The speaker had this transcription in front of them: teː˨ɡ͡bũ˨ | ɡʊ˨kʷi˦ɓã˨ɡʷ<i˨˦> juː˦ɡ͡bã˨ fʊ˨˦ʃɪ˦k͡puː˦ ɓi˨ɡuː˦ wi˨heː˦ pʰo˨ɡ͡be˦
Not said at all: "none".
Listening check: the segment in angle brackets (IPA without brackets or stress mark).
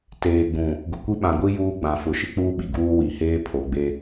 i˦